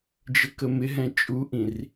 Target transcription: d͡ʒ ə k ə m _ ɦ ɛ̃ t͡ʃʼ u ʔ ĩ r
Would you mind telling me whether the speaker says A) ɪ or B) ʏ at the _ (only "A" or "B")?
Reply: A